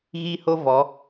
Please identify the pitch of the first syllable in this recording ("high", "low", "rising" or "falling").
high